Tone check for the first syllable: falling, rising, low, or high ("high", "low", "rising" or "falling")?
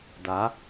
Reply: rising